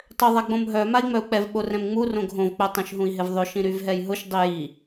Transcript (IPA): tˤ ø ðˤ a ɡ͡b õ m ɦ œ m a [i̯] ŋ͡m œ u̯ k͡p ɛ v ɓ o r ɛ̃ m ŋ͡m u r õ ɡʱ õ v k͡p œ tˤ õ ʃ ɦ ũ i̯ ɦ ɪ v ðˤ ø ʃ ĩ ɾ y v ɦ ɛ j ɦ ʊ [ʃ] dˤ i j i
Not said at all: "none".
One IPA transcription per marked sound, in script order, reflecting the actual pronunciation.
i̯, ʃ

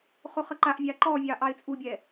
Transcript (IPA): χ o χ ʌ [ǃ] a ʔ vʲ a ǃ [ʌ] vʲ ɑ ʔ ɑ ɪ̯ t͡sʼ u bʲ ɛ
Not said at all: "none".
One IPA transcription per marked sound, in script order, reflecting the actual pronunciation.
ǃ, ɔ

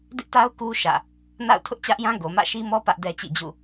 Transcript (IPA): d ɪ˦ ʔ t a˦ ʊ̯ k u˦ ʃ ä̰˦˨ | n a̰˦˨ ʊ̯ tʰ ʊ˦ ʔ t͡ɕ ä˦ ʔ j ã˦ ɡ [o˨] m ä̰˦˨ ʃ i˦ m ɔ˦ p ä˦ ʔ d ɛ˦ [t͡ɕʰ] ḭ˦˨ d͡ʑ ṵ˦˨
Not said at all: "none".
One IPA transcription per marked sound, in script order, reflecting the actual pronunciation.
o˨, t͡ɕ

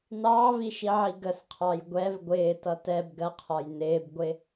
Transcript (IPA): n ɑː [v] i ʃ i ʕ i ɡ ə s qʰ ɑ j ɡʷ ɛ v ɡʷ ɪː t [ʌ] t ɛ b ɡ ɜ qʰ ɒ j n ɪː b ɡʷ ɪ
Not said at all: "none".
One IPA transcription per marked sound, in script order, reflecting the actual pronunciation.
v, ʌ

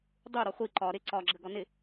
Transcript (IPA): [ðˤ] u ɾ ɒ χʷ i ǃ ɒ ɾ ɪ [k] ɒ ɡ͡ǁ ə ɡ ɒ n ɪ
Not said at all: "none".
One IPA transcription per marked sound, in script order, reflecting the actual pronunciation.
dˤ, ǀ

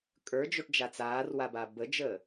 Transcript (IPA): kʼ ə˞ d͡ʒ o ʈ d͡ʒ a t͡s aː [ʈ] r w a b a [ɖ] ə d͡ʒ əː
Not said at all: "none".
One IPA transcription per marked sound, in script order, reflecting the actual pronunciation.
none, b

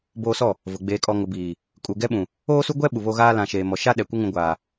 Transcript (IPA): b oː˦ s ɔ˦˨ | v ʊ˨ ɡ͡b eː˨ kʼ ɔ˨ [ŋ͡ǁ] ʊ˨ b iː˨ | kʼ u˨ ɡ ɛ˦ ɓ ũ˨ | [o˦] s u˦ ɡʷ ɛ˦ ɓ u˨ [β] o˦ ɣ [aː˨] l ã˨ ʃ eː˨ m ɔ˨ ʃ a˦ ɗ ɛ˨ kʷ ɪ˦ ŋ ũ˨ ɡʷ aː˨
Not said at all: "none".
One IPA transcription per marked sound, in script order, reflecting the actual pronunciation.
ŋ, oː˦, β, aː˦

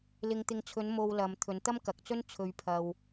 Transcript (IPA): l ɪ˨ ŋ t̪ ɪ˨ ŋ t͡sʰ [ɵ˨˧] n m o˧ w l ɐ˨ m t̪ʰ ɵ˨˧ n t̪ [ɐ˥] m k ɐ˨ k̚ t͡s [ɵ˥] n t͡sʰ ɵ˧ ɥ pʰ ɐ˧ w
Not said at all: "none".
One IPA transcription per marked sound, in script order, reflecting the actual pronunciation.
ɵ˨˧, ɐ˥, ɵ˥

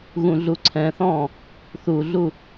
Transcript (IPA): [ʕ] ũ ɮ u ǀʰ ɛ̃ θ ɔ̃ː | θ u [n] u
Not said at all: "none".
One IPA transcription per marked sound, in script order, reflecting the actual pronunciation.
ɣ, ɮ

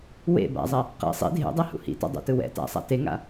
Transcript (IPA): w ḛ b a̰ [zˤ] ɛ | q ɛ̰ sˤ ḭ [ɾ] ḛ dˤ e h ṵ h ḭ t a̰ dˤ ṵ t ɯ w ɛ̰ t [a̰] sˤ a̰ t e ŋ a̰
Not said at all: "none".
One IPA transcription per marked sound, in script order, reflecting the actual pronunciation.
zˤ, dʱ, a̰

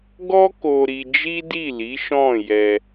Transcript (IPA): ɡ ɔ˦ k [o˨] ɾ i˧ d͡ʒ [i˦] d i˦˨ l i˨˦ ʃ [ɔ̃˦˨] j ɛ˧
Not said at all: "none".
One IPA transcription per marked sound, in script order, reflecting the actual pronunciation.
o˧, i˦, ɔ̃˦˨

